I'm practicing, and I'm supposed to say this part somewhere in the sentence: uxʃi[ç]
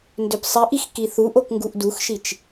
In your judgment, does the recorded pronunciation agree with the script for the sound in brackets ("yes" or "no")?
no